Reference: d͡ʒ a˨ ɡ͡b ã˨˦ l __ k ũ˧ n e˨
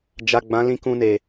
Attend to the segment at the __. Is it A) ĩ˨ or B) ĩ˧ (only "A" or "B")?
B